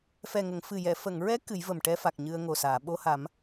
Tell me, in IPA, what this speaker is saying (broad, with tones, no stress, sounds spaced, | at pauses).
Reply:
f ɛ˨˩ ŋ ə˨˩˨ ŋ f ɨ˨˩ j ɛ˨˩˨ f ə˨˩˨ ŋ ɹ ɛ˧˥ k ɨ˨˩˦ j v ə˨˩ m ʈ ɛ˧ f a˨˩ k̚ ɲ ɨ˧ ə̯ ŋ o˨˩ s aː˨˩˨ ɓ o˧ h a˨˩˦ m